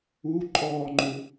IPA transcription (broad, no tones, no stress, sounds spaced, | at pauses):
u ǃʼ ɔː ŋ͡ǃ u